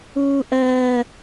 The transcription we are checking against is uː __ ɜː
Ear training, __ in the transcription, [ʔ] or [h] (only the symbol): ʔ